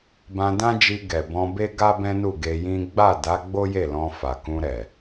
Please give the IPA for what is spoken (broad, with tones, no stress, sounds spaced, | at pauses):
b ã˧ d ã˦ d͡ʒ i˧ ɡ ɛ˨ b ɔ̃˧ b e˦ ɡ a˦ b ɛ̃˦ n u˦˨ ɡ e˧ j ĩ˦ ɡ͡b a˦˨ d a˨˦ ɡ͡b o˦ j e˦˨ l ɔ̃˧ f a˨ k ũ˧ ɾ ɛ˨